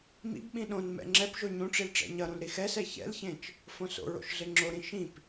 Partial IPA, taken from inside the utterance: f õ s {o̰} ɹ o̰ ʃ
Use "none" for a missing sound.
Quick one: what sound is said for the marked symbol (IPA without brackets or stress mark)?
o̰